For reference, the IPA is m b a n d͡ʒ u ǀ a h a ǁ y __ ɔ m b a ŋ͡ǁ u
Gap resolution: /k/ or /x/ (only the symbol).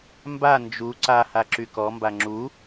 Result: k